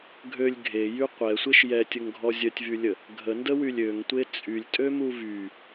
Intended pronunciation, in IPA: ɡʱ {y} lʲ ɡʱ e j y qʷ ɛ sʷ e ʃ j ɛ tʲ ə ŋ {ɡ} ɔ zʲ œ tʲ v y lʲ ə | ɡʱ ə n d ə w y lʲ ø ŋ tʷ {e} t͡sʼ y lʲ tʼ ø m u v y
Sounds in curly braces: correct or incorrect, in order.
incorrect: ø, incorrect: ɡʱ, correct

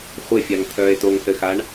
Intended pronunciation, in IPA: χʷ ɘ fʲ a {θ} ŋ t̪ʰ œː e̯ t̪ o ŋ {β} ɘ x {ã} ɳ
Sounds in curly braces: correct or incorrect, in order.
incorrect: none, incorrect: θ, incorrect: a

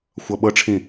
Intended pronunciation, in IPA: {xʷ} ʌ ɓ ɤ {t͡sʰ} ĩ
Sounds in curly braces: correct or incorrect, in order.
correct, incorrect: ʈ͡ʂʰ

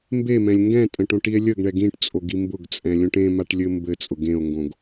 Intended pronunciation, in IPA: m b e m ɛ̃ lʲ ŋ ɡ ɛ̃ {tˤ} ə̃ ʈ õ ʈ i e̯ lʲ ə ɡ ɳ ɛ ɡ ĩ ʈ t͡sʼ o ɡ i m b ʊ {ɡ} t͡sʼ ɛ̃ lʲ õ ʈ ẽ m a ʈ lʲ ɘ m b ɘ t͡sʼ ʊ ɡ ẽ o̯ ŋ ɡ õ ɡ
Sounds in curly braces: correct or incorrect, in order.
incorrect: tʼ, correct

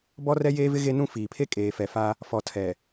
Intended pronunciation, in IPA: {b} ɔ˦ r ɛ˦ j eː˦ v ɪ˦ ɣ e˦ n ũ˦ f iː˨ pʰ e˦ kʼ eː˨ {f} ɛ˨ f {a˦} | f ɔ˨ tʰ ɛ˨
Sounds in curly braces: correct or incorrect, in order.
correct, correct, correct

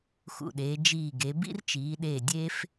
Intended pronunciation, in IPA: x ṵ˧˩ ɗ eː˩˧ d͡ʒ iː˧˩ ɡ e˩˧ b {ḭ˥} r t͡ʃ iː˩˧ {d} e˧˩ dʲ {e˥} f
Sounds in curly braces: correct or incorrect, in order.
correct, incorrect: ɗ, correct

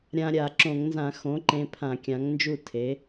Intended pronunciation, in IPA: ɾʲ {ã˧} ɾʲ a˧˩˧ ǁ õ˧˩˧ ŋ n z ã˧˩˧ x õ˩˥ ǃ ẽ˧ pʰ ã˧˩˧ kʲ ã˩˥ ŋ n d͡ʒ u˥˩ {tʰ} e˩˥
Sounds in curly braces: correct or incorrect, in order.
correct, correct

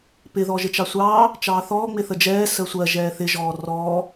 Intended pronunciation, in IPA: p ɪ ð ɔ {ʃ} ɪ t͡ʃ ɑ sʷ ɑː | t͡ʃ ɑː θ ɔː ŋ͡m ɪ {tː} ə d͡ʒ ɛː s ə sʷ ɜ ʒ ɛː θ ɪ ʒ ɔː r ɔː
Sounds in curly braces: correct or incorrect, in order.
incorrect: ʒ, incorrect: θ

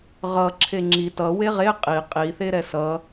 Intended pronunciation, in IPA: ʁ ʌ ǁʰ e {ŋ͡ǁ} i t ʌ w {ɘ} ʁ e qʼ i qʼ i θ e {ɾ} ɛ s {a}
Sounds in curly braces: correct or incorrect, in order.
correct, incorrect: e, correct, incorrect: ʌ

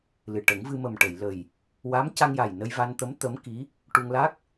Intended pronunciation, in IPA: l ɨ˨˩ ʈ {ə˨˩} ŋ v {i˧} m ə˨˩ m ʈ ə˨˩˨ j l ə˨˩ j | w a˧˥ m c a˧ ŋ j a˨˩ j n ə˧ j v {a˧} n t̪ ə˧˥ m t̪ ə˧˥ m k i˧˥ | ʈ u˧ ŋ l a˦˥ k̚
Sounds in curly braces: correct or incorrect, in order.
incorrect: ə˨˩˦, incorrect: ɨ˧, correct

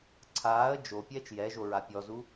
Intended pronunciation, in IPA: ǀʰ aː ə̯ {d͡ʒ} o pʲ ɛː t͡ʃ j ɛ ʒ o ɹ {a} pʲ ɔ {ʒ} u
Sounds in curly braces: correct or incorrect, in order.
correct, correct, incorrect: z

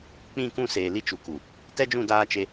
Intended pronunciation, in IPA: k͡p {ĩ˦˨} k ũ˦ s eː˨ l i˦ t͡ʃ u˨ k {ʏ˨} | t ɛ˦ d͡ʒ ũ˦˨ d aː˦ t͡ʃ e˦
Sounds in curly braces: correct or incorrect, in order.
correct, incorrect: u˨

